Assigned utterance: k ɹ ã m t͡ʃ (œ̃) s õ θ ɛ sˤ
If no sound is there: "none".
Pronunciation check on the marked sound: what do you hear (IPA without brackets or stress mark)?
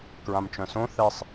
œ̃